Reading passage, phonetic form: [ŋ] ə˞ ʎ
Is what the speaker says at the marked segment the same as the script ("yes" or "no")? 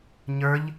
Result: no